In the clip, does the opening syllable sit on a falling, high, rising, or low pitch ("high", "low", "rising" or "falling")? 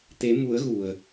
rising